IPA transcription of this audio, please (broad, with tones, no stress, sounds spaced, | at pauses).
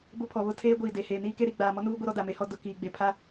b ʊ˦ pʰ ɔ˨ β ʊ˦ tʰ eː˦ ɡʷ iː˨ d e˨ h eː˨ n iː˦ k e˦ ɾ i˨ ɡ͡b aː˨ m ɔ˦ n uː˦ ɡʷ i˦ ɾ ɔ˦ d a˨ m e˦ h ɔ˦ d ʊ˨ k iː˨ ɡ͡b e˨ pʰ a˦